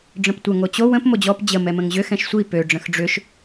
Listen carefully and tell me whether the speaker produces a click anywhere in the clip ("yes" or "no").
no